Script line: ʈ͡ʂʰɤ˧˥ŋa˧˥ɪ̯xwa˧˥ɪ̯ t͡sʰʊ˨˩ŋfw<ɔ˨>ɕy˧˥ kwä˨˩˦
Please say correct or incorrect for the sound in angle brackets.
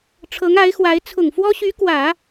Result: incorrect